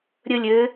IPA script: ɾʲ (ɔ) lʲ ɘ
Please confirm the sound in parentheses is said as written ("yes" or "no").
no